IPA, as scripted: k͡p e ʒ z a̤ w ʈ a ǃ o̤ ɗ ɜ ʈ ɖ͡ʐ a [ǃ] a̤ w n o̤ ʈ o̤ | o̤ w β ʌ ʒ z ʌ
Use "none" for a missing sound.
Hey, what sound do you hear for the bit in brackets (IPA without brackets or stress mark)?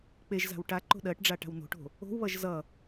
ʈ